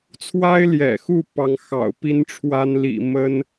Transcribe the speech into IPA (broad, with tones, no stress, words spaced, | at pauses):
t͡sʰwa˥ɪ̯ljɛ̰˨˩xu˥˩ pɑ˧˥ŋxɑ̰˨˩ʊ̯ pi˥nʈ͡ʂʰwa˥nlḭ˨˩ mə˥n